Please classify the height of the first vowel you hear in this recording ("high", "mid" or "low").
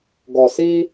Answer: mid